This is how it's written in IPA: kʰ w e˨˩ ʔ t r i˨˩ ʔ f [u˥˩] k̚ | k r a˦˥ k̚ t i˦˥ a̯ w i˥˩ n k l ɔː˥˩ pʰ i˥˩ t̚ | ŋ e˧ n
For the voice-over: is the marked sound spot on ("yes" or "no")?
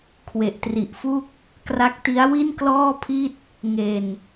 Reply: yes